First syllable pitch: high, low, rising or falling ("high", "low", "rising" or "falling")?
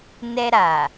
high